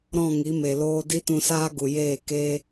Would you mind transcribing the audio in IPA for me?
ɾɔ̃˦˨ŋi˨˦me˨loː˦ di˦tũ˧saː˦ ɡu˨jeː˦˨ ke˦

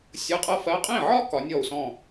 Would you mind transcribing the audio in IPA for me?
sʲɤ˧˥˧qʼɤ˥fɜ˧˥˧ qʼĩ˥˩ʕɒ˥ kɒ˨˥nʲɔ˥˩u̯sɔ̃˥˩

